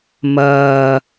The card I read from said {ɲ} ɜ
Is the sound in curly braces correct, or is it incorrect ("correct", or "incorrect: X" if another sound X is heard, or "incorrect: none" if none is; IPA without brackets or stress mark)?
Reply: incorrect: m